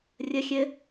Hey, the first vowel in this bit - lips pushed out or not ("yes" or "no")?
no